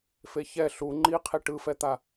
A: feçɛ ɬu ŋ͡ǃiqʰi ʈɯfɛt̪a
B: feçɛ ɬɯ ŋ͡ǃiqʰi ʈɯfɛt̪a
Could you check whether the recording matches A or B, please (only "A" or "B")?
A